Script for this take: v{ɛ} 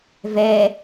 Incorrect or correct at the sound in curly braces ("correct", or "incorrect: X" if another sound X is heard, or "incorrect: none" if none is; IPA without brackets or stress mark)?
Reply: correct